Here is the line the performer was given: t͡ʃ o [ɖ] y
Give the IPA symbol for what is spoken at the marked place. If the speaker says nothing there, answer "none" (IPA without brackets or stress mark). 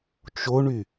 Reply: ɳ